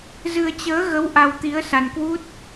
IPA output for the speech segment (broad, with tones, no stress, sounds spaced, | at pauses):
z ɨ˧ ə̯ t͡ɕ əː˨˦ ɣ ə˨˦ w ʔ a˧ w t̪ i˨˦ ə̯ s a˧ n k w u˦˥ t̚